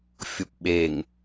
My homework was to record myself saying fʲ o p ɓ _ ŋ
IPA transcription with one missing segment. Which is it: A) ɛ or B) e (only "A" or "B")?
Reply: B